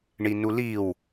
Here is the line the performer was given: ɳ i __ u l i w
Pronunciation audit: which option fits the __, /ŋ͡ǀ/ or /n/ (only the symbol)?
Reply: n